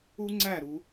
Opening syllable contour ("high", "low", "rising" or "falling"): high